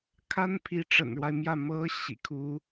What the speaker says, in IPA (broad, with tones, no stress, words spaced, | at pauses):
kʰa˥n pʰi˧˥ʈ͡ʂə̰˨˩nɻwa˦ɪ̯mjä˥˩ mɤ˧˥ ɕḭ˨˩kʰu˥